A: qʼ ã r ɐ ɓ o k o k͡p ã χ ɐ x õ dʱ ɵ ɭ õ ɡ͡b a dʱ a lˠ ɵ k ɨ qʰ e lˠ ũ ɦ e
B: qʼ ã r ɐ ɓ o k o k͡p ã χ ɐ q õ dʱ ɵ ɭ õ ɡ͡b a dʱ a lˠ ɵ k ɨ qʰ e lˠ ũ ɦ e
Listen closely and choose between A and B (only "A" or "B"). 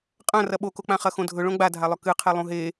A